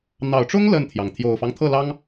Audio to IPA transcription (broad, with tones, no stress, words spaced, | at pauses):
n̪ɑ˨˩ʊ̯ʈ͡ʂʊ˥ŋ lə˥˩nt̪ʰjɑ˩ŋ t̪ʰjo˨˩ʊ̯fɑ˦ŋt̪ʰɤ˥˩ lɑ˥ŋ